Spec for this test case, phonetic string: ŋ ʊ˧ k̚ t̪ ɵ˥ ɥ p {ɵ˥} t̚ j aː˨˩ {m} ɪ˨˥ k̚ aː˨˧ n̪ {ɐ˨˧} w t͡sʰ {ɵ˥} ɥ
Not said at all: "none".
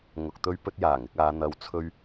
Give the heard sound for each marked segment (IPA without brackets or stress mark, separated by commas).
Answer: ɵ˥, ŋ, ɐ˨˧, ɵ˥